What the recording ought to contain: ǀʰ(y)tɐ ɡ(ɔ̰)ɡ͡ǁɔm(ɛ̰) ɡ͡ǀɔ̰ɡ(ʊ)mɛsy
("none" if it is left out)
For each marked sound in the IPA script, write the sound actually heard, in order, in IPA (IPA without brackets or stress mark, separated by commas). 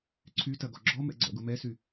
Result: y, ɔ, ɛ̰, ʊ